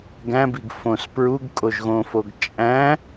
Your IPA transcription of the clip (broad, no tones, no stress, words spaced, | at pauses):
ɡæ̃biɡ fõs pɹuɡ kʼoʒɣõfoɡ t͡ʃʼæ̃